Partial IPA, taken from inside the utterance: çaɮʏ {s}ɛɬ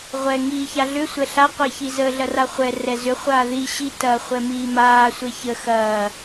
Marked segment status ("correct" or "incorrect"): incorrect